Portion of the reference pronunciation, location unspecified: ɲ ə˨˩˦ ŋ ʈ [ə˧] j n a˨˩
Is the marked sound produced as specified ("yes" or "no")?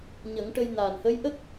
yes